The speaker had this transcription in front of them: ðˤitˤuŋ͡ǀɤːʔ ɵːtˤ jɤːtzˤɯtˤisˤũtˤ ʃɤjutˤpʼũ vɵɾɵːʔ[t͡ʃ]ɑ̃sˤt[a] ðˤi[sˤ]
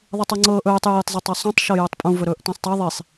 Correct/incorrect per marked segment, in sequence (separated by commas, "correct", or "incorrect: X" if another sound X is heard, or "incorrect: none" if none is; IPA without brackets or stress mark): incorrect: t, incorrect: ɑ, correct